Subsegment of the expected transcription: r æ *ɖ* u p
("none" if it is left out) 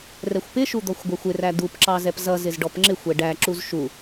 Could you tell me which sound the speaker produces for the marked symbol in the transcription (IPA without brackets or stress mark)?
d̪